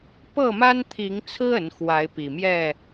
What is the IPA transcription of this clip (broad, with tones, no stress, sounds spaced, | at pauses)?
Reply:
p ɤ˥˨ m a˦ n t̪ʰ i˨˦ ŋ t͡sʰ ɹ̩˦ ə˨˦ n x w a˨˦ ɪ̯ p i˨˩ m j ɛ˥˨